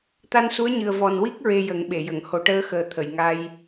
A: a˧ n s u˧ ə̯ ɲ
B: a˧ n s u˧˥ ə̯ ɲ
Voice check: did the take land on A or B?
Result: B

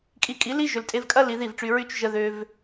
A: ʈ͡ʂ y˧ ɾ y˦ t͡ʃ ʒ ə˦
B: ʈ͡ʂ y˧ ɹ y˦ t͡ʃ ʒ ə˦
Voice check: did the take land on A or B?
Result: B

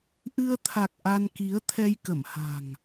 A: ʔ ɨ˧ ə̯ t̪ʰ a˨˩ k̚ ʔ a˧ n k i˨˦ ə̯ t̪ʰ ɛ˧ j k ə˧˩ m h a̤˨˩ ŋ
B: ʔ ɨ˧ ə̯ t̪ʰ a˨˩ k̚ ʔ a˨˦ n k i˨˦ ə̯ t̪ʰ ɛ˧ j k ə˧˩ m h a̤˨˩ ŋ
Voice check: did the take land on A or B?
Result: A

